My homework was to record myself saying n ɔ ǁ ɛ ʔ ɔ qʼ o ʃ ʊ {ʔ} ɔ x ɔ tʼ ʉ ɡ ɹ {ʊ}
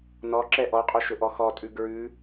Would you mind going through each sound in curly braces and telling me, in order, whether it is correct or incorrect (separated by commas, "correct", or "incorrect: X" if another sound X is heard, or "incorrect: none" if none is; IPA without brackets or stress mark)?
correct, incorrect: ʉ